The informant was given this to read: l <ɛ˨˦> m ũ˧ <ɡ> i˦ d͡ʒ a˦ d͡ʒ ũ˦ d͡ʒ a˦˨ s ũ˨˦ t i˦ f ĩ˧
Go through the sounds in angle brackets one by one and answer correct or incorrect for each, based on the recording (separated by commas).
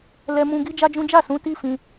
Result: incorrect, correct